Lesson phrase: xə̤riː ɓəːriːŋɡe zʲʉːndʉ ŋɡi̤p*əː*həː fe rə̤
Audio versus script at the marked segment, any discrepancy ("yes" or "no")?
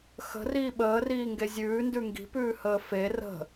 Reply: yes